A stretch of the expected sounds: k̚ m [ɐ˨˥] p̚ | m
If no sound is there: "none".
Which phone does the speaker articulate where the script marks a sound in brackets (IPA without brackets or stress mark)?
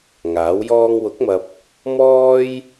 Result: ɐ˨